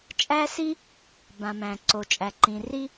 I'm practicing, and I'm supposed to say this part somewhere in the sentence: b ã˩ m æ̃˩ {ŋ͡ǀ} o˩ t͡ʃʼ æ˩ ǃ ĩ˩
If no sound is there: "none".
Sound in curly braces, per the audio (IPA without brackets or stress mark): ǀ